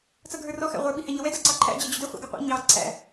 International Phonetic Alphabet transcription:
t͡s ʌ ɡʱ ə˞ r ɔ x æ̰ ʁʷ ə˞ ɓ i h æ ɲ ʌ w ɛ d ʌ ǀ ɑ ǃʰ æ̰ d͡ʑ ɛ d͡ʑ ʊ d ɛ χʷ ɑ̰ ɡ i qʷ æ̰ ɲ ɑ ǀʰ æ̰

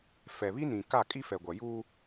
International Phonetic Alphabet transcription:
f ɛ˨ β i˦ n ĩ˨ k a˦˨ kʼ i˦ f ɛ˨ ɡʷ a˨ j uː˦

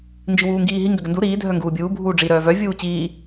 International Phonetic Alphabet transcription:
n d͡ʒ i w uː ŋ ɡ iː ɦ i ŋ ɡ ʏ ɡ ə n d u ɾ iː dʱ œ ŋ ɡ uː bʲ uː bʱ uː ɖ͡ʐ i ɾ œː v œ vʲ uː t͡ɕ iː

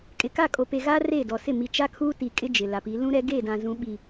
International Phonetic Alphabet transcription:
kʼ ɪ˨ k a˦˨ kʼ o˨ p e˨ ɣ aː˦ r e˦˨ d ɔ˨ s ɪ˦˨ m i˨ t͡ʃ a˦ kʰ uː˦ t i˨ kʼ ɪ˦ d͡ʒ ɪ˨ l a˨ p i˨˦ l ũ˦ ɾ ɛ˦ ɡ e˦˨ d ã˨ z ũ˨˦ ɓ i˨

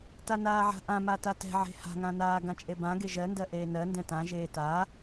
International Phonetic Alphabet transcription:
t a n aː ʕ a̤ ʔ ã m a t a t ɛ̤ ʕ e̤ h a̤ ŋ ã n aː ɡ ã t͡ʃʼ e b ã ɡ e ʒ ɜ n d ɜ ʔ eː n ɜ n d ɛ̃ t ã ʒ eː t a

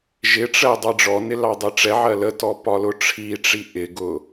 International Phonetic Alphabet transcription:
ʒ ɪ ʈ͡ʂ ɜ dˤ ɑ ɖ͡ʐ ɔ n ɪ l ɑ dˤ ɛ ʈ͡ʂ ɛ ʕ ɜ l ə t ɔ p ɒ l ʊ ʈ͡ʂʰ i ʈ͡ʂ i ʔ ɪ ɡ ʊ

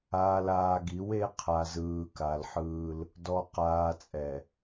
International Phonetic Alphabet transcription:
aː˨ l aː˨ ɡ i˨˦ w e˦ qʰ a˨ z ɯː˨ k a˨ l ħ ɯː˦ l | d ɔ˨ q aː˨ t͡sʼ ɛ˨

